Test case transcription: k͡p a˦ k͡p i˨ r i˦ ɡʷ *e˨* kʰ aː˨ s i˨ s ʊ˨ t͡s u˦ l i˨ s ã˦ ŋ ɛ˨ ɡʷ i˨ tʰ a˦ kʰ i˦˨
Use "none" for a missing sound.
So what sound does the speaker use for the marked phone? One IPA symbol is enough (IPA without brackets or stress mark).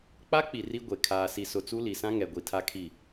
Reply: e˨